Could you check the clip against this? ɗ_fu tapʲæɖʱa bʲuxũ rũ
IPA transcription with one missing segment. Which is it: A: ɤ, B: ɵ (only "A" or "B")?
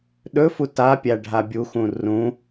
B